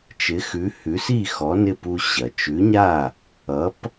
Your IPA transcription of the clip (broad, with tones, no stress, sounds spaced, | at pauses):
t͡ʃ ɪ˩˥ x ʉ˩˥ h ʉ˩˥ s i˥˩ x ɔ˩˥ n ɪ˥˩ p u˧ ɕ ɐ˩ t͡ʃ ʉ˩˥ ɲ a˥˩ | ʌ˩˥ p